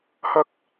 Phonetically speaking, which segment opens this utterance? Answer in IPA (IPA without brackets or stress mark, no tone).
h